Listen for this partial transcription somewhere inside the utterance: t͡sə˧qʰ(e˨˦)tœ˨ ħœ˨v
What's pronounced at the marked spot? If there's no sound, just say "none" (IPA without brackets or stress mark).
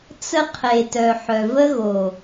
e˨